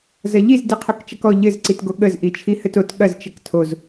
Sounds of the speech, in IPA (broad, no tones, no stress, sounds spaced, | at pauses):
z ɐ ʎ i z d i qʰ o k t͡ʃ ɐ k ɔ ʎ ɘ z ǀ i t ɡ o ɠ ə z ʔ i t͡ʃʰ i h ɘ t o t ɠ ɐ z t͡ʃ ə k tʰ o z